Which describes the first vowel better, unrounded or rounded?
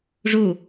rounded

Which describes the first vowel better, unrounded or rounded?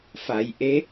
unrounded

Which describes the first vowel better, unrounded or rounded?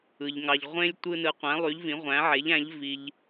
unrounded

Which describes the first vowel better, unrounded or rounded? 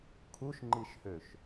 rounded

